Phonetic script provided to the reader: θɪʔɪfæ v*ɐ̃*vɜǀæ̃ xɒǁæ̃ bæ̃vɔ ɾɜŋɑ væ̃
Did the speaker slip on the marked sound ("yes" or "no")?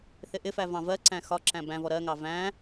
yes